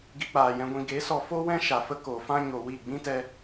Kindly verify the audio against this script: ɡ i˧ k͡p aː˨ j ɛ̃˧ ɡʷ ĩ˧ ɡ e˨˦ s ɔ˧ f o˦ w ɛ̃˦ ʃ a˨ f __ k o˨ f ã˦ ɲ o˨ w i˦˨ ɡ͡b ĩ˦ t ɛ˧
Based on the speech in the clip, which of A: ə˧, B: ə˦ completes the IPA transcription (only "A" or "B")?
B